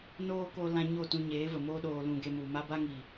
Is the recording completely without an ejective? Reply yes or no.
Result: yes